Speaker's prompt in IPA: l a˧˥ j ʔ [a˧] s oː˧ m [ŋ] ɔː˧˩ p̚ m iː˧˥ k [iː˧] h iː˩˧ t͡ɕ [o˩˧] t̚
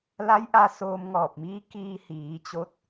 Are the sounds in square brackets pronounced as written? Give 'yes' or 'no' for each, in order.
yes, yes, yes, no

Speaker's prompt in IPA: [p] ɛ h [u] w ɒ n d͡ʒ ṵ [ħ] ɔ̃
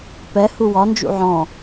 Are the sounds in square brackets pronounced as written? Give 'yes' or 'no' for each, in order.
yes, yes, no

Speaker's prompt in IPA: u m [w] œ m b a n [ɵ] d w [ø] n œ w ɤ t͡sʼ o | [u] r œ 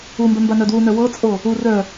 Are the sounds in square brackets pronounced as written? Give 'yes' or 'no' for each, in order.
no, no, no, yes

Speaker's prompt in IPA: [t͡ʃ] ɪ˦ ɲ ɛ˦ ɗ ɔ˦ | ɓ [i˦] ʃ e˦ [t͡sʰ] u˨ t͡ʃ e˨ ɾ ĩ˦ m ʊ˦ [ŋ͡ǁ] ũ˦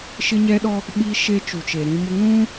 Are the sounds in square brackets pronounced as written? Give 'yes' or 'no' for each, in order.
no, yes, no, no

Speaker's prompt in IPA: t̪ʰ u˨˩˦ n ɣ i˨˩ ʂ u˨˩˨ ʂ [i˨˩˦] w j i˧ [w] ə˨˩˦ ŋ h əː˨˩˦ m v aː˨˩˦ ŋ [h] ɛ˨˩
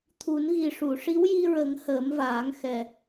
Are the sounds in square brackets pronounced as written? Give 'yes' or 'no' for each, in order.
no, no, no

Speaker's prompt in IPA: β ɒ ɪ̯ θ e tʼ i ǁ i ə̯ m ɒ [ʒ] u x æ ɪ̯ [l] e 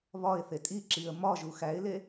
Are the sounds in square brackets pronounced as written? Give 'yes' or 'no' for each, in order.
yes, yes

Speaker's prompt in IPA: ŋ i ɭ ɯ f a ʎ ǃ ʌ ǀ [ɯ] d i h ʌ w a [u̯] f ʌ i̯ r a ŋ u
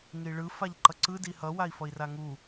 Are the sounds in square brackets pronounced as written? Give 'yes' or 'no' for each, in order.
yes, no

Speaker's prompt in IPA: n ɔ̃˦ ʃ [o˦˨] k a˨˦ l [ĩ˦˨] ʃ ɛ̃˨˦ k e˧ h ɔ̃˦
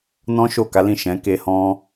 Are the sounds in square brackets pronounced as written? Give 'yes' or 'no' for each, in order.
yes, yes

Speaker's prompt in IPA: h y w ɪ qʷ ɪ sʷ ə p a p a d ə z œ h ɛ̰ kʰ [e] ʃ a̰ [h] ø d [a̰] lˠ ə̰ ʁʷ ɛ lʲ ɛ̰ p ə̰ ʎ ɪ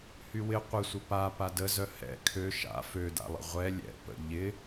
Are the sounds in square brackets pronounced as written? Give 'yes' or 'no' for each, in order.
no, no, yes

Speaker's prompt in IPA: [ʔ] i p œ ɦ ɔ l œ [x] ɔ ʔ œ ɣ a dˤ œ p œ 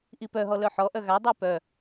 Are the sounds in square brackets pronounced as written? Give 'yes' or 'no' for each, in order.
yes, no

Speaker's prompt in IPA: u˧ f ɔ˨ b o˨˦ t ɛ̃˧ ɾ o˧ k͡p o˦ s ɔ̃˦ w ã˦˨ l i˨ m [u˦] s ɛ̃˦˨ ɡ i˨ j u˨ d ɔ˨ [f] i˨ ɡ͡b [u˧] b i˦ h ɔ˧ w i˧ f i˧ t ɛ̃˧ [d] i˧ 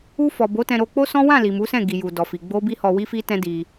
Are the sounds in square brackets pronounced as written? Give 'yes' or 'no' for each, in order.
no, yes, no, yes

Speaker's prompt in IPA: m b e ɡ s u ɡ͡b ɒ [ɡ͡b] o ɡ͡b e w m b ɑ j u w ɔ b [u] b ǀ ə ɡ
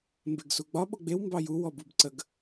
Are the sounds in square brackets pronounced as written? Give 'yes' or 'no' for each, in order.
no, yes

